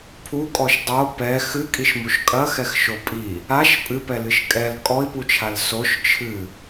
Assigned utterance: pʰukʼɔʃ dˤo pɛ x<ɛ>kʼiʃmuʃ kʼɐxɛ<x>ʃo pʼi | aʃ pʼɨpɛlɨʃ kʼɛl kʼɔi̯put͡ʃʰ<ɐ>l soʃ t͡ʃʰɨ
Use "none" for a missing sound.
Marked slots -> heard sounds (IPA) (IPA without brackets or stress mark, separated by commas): ɨ, x, a